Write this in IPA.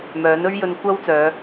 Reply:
m œː˨˥ n ɵ˥ ɥ j ɵ˧ n kʷ ɐ˥ w t͡s œː˨˧

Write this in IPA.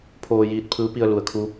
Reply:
pʰ oː˧ j iː˧ t̚ pʰ ɯː˧˥ p i˧ ə̯ l u˩˧ ə̯ kʰ u˧˥

